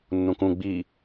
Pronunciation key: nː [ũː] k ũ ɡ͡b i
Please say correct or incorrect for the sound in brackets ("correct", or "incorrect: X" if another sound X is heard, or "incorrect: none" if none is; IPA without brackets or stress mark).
incorrect: ũ